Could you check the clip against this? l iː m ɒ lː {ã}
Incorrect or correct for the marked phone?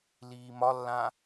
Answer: correct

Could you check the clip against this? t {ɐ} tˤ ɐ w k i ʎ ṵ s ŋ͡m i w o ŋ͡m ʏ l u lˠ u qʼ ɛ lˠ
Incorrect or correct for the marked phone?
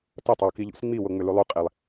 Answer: correct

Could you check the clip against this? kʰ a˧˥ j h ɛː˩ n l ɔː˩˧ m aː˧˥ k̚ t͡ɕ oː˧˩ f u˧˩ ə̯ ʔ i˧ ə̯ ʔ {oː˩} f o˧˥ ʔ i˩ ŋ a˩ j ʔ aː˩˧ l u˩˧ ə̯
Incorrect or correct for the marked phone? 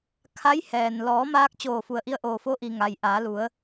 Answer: correct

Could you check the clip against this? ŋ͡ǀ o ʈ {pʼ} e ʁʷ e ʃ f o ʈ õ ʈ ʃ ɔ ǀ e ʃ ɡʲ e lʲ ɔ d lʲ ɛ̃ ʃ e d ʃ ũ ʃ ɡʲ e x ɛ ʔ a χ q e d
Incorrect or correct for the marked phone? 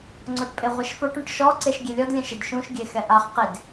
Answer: correct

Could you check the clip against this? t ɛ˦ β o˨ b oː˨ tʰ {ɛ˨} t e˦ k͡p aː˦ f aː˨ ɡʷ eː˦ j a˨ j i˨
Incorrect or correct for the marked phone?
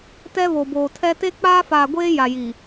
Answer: incorrect: ɛ˦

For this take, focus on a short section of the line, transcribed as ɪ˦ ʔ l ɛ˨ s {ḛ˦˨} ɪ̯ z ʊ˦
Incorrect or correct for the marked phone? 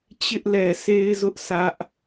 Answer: incorrect: e˦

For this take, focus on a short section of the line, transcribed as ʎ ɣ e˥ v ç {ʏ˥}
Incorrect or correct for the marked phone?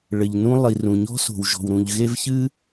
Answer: incorrect: ɨ˥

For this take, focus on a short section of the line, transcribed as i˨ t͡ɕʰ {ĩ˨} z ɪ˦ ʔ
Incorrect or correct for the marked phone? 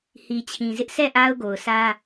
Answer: correct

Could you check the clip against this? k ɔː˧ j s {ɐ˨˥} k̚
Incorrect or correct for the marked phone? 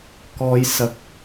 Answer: incorrect: ɐ˧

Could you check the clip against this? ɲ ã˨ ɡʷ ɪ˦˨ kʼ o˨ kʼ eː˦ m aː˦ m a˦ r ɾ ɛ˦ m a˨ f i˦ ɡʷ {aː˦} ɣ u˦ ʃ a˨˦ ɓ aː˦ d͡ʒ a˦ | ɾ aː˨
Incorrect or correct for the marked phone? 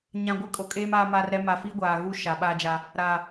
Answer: incorrect: aː˨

